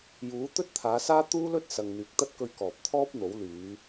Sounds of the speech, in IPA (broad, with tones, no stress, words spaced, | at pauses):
juː˨˥t̪ɵ˥t̚t̪ʰaː˨˧saː˥ t̪uː˥lɵ˥t̚sɐ˨ŋ n̪yː˨k̚t̪ɐ˥t̚kɵ˧ɥ kɔː˨p̚t̪ʰɔː˥p̚n̪o˨˥wlyː˨˧